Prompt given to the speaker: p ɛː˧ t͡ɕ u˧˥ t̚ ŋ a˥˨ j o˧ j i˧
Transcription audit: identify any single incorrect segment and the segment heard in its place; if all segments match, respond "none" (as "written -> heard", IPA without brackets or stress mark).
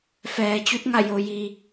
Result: p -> f